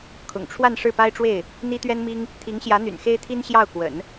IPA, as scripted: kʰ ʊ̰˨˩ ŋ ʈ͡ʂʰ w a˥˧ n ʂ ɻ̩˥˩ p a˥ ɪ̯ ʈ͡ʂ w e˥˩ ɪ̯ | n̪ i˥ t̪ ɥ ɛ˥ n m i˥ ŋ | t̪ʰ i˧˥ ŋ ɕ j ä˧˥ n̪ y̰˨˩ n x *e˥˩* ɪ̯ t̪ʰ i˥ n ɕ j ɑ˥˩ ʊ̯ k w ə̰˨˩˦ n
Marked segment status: incorrect: e˥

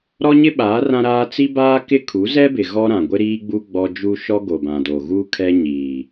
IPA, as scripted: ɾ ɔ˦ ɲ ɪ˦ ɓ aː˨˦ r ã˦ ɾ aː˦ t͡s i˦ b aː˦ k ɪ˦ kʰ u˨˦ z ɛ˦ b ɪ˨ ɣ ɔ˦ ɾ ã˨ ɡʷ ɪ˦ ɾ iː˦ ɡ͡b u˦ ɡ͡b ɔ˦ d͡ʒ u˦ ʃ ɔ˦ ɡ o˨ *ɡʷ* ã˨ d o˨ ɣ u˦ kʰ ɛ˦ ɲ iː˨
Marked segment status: incorrect: b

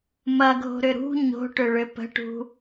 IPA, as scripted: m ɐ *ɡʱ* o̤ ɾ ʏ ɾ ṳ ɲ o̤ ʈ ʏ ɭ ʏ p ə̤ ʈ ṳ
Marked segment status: correct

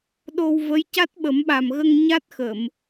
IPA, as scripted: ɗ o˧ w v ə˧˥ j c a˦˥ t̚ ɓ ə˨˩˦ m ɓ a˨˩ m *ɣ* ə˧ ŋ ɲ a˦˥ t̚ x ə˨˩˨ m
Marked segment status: correct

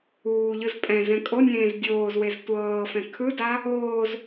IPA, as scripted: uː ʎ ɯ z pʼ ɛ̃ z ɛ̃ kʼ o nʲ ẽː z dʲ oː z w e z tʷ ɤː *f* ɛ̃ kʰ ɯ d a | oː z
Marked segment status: correct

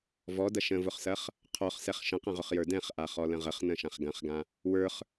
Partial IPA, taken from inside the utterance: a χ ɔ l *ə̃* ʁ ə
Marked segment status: correct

